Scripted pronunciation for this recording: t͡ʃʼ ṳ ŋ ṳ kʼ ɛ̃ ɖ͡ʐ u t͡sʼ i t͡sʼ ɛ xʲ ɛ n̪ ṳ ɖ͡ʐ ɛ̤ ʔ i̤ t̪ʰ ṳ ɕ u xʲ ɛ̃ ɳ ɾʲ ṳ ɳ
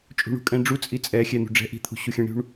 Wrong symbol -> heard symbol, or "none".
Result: ŋ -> ɳ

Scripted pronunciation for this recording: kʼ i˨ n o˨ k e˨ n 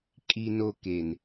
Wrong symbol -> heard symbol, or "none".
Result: none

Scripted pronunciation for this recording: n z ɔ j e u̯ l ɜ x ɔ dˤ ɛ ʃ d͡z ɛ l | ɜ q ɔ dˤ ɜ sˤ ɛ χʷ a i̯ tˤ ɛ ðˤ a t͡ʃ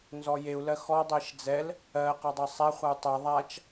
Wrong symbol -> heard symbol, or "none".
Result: i̯ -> u̯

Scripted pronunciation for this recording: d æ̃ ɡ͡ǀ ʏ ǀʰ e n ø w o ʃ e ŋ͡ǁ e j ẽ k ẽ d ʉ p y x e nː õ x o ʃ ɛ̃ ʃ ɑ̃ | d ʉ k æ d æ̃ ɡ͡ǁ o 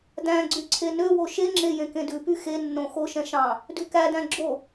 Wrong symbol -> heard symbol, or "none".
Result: ʏ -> y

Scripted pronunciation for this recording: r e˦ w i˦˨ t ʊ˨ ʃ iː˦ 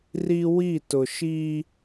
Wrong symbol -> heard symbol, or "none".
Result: e˦ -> i˦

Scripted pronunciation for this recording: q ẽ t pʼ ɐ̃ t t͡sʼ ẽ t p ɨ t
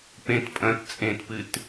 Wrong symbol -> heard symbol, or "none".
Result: q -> p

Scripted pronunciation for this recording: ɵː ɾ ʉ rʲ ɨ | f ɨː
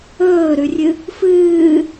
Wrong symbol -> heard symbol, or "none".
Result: none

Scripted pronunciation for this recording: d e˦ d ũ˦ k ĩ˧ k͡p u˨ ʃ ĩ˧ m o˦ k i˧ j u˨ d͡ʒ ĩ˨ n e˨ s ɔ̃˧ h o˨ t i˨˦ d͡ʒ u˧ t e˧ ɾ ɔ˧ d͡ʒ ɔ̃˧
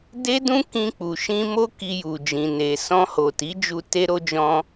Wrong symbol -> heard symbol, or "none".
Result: ɔ˧ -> o˧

